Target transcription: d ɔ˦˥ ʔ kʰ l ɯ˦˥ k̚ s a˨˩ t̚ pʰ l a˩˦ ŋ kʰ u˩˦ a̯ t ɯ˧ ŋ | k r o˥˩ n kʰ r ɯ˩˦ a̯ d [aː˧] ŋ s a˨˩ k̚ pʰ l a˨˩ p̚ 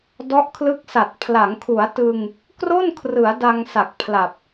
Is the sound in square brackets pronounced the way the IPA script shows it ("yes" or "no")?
no